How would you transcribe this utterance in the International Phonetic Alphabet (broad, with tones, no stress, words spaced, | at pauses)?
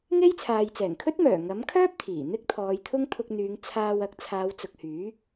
ŋe˥jt͡sʰaː˨jt͡sɛː˨˩ŋ kʰɵ˥t̚mœː˨˩ ŋɐ˨˥mkʰœː˥p̚ t̪ʰiː˨˩n̪ɪ˥k̚t̪ʰɔː˨˧jt̪ʰʊ˥ŋ t̪ʰʊ˧k̚n̪yː˨˧ŋ t͡sʰaː˧wɐ˧k̚ t͡sʰaː˨˧wt͡sʊ˨k̚hyː˨˥